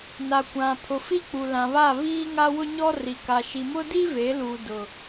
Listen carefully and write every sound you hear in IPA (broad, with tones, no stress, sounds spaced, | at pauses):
n a˨ kʷ ã˨ pʰ ʊ˨ f i˦ k͡p u˨ l ã˨ β a˦˨ β iː˦ ŋ a˦ w ʊ˦ ɲ ɔ˦ r i˨ k a˨ ʃ i˨ m ʊ˦ d i˦ v e˨˦ l u˨ d ʊ˨